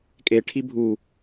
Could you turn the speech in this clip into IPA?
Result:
kʼ e ʈʰ i bʱ u

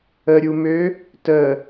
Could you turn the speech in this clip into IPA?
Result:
ə ɾʲ u m ø | t ə

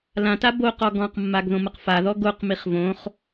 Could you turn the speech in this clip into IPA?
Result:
l ã t a b o q ɔ ɡ ɔ̃ q mː a ɡ ð õ m ə q f a ð ɔ ɡ o q m i χ v õ χ

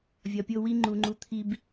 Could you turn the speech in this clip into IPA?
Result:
vʲ ɒ˨ pʲ o˦ w i˦ ŋ͡ǃ u˨ ŋ͡ǃ u˨ t̪ʰ i˨ b

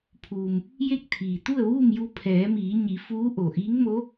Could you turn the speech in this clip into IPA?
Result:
pʰ uː˩ m | j e˥˨ k̚ t̪ʰ iː˩ t̪ u˥˨ ə̯ ʋ uː˥˨ m j u˧ pʰ ɛː˩˧ m iː˩˧ ɲ i˩˧ f uː˧˥ ʔ o˩ ʔ iː˧˥ ŋ m o˧˥

